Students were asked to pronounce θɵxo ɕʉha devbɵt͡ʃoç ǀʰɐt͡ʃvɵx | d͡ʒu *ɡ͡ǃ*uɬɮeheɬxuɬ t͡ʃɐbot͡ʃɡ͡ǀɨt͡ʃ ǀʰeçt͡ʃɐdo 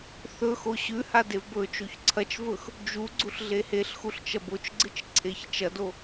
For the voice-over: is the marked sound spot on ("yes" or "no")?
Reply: no